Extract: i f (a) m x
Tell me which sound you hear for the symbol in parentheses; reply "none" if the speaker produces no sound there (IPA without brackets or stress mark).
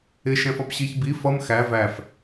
ʌ